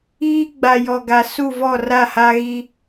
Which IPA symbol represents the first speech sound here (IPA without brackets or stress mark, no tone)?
iː